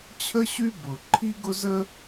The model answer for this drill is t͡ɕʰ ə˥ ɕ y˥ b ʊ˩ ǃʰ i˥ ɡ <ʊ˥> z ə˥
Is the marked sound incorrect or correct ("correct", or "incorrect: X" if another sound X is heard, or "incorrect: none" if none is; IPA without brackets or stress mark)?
correct